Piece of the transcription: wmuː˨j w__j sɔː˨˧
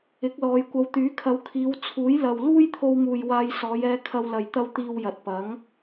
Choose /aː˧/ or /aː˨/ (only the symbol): aː˧